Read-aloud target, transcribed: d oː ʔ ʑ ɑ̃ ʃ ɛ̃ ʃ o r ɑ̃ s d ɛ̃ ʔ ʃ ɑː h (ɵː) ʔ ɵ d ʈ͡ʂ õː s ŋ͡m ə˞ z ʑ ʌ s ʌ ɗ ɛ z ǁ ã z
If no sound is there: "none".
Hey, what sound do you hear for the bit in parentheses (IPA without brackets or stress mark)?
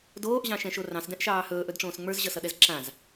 ɵː